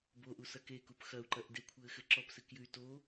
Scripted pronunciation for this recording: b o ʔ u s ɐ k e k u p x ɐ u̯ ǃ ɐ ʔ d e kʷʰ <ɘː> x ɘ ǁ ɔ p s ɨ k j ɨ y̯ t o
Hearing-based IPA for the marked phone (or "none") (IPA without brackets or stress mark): ɘː